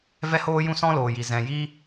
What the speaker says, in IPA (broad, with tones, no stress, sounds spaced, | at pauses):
v ɛ˦ h oː˦ j ũ˦ s ɔ̃˦ l oː˨ j i˨ z ɛ̃˨ j i˦